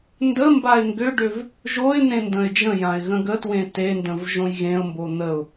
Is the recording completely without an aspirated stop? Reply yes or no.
yes